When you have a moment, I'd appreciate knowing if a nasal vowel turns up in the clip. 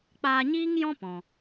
yes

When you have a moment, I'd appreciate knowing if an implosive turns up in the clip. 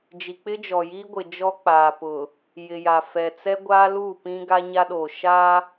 yes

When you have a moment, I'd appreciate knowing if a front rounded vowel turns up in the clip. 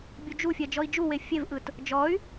yes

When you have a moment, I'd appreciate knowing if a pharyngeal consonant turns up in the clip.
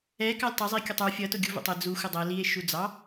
no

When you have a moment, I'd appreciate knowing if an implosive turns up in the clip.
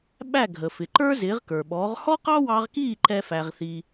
yes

